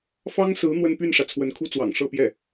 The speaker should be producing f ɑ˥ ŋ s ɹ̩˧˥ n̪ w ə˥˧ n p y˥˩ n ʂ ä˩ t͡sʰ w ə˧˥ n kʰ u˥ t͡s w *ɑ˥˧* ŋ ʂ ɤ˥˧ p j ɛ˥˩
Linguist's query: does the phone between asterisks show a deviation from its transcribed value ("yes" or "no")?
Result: yes